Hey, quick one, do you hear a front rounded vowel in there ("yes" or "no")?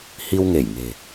no